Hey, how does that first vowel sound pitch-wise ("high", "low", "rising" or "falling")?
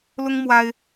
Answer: high